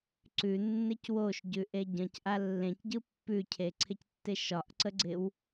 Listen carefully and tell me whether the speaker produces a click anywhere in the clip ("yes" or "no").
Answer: yes